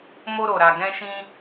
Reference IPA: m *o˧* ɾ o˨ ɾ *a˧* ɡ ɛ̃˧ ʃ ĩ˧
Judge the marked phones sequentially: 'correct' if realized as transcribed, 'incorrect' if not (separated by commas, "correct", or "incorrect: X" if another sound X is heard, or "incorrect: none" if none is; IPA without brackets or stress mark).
correct, incorrect: a˨